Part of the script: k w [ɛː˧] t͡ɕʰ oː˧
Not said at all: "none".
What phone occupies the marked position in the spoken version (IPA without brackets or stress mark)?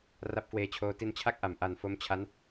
eː˧